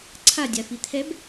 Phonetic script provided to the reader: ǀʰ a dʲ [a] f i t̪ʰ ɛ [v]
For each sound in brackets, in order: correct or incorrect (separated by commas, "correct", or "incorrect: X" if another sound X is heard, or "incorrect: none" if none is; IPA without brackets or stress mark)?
correct, incorrect: b